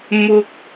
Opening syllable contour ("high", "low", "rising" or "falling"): high